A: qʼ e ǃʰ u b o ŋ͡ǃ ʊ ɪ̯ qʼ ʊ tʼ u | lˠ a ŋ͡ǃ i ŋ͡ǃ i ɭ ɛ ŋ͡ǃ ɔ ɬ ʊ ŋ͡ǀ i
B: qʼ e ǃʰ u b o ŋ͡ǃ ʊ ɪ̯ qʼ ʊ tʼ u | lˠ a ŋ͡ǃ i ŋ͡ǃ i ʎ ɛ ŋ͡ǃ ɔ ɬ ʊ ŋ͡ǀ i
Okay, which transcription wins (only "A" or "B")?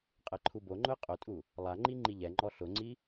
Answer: B